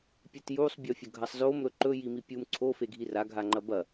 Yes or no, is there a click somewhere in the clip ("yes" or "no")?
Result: yes